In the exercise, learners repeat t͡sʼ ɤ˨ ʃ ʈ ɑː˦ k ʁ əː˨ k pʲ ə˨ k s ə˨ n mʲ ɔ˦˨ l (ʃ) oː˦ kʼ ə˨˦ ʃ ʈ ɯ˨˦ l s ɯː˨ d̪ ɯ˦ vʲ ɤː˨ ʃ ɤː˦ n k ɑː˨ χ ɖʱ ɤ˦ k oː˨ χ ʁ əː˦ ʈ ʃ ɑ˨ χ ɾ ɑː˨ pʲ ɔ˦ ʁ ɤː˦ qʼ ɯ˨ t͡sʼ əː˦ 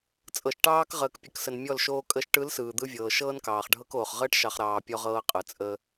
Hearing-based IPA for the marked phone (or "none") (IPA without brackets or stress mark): ʃ